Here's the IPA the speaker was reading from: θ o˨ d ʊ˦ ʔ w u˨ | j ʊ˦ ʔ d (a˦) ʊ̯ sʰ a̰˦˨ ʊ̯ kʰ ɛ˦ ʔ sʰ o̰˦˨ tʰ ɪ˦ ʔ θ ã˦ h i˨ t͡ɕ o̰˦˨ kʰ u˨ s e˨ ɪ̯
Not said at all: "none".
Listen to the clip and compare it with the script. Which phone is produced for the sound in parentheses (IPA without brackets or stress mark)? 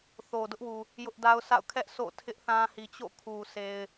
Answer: a˦